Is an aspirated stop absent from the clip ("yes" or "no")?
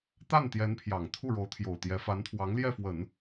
no